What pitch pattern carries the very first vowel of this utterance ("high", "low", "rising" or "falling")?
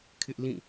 high